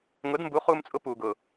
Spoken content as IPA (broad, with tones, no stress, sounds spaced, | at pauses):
ŋ ʊ˨˦ d m b u˨˦ χ uː˧ m t͡sʼ ʊ˧ p uː˨ ɡ ʊ˨